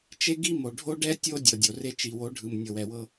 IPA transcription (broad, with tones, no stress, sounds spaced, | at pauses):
t͡ʃ e˦ ɡ i˦ m o˨ ɖʱ o˦ ɖ ɛ˦ tʲ o˦ dʲ ɤ˨ dʲ o˨ r e˦ t͡ʃ i˨ w o˨˦ ɖʱ ɯ˨ m nʲ ɤ˨ w ɛ˨ w ɤ˦